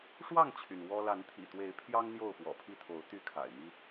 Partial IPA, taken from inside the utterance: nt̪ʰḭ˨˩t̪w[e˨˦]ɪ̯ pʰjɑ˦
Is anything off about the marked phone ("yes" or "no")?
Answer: no